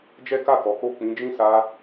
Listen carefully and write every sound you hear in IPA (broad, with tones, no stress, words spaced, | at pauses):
d͡ʒɛ˦ka˦˨kɔ˨˦ko˦˨ k͡pĩ˨˦d͡ʒĩ˦˨sa˧